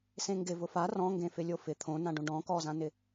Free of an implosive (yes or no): yes